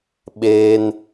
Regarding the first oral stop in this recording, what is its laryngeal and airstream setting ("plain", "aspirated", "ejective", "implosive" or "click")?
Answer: implosive